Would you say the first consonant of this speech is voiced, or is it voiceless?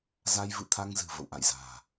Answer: voiced